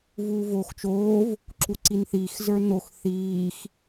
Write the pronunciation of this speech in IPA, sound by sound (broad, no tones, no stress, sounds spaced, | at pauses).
v uː v oː x t͡ʃ oː v | ǁ u ǀ i n θ iː x z ə˞ n o x θ iː x